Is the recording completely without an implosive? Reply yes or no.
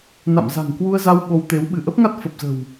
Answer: no